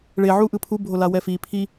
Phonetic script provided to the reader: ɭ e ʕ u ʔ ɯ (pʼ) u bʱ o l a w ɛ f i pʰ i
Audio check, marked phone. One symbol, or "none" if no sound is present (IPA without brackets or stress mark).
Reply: pʰ